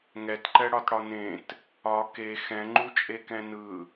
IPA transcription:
ŋɛtǃɛɽɒtɽɒ nẽt | ɒ ke xɛ̃ŋ͡ǃut͡ʃʼekɛ̃ nɯ

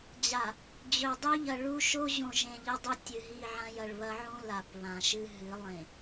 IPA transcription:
d͡ʑa˨ | d͡ʑɵ˨ dˤɵ˦ʎɐ˨ɭu˦ ʃo˦ʑõ˨ʒẽ˨ ʎɐ˦dˤɵ˦ tʲɨ˨ɦi˦˨ʕã˦j ɐ˨ɭβɐ˦ʕũ˦ la˨pβã˨ʃɨ˦ɦɨ˨˦ lˠẽ˨

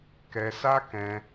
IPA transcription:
kɛ˧sa˦ kɛ̃˧

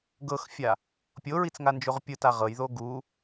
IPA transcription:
ɡɤxfʲa | pʲoɹit͡sŋand͡ʒoʁ pʲɯta ʁɤjðo ɡu

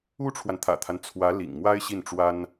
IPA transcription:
u˥ʈ͡ʂʰwa˨nt̪ʰä̰˨˩t̪ʰa˦n t͡sʰwä˧˥lḭ˨˩ŋ mwa˥ɪ̯ɕi˥˩nʈ͡ʂwa˥n

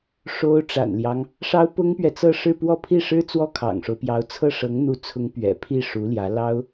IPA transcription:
ʂo˥ʊ̯ ʈ͡ʂa̰˨˩nljɑ˦ŋ | ʂɑ˥ʊ̯pʊ˥ŋpɥɛ˨ t͡sɤ˥˧ʂɻ̩˥˧pwɔ˥˧ pʰi˥˩ʂɻ̩˥ t͡swɔ˥kʰɑ̰˨˩ŋʂo˦ʊ̯pjɑ˧˥ʊ̯ t͡sʰɤ˥˩ʂɤ˧˥ŋn̪u˧˥t͡sʰʊ˧˥ŋ pɥɛ̰˨˩pʰi˥˩ ʂu˧˥ljä˧˥ lɑ˥ʊ̯

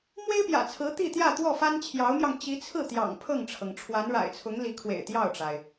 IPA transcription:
mwe˥ɪ̯pjä̰˨˩t͡sʰɹ̩˧˥ t̪i˥˧t̪jä˥˧ t̪wɔ˥˩fa˥nt͡ɕʰjɑ˧˥ʊ̯mjɑ˧ŋ t͡ɕi˧˥t͡sʰɹ̩˥˩t̪jɑ̰˨˩ŋ pʰɤ˥˩ŋʈ͡ʂʰɤ˩ŋ ʈ͡ʂʰwa˧˥nɻa̰˨˩ɪ̯t͡sʰʊ˧˥ŋ li˧˥kʰwḛ˨˩ɪ̯ t̪jɑ˥˩ʊ̯ʈ͡ʂa˩ɪ̯

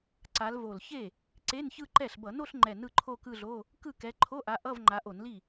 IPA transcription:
ǀa˨˦l vo˨˩lçe˥˩ | ǀe˧˥˧nçɯ˥˧ǃɛ˥˩ɬ bʌ˧˩˧no˥˧ɬŋ͡ǃɛ˨˩ nɯ˥˧ǃʰo˥˧ kɯ˥˧ɮo˧˥˧ | kɯ˥˩kɛ˨˦ ǃʰo˧˥˧ʔa˨˦ ʔʌ˧˥˧v ŋ͡ǃa˨˦ʔo˧˩˧nli˥˩

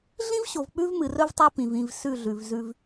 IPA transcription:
ɮĩ˦vɕo˨v k͡pʉ˦vmɨ˨rɵ˦vtˤa˦ pĩ˨vĩ˦˨v sʉ˦˨ɮʉ˨vzʉ˦v

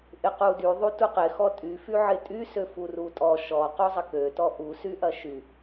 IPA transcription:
ʔɪqudy ðˤutuqɪ xɔtʼy fyʕɪtʼy søfurutʼɔ ʃɔ quzˤəkø tɔʔu syʔɐʃy

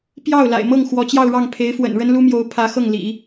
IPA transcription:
pjɑ˥˩ʊ̯ la̰˨˩ɪ̯mɤ˥˩ŋ xwɔ˧˥t͡ɕjɑ˥˧ʊ̯ɻɑ˥˩ŋ pʰe˧˥ɪ̯ fwə̰˨˩nɻə˥nlu˥mjo˧˥ʊ̯ pʰä˧˥xɤ˥˩ŋlḭ˨˩˦

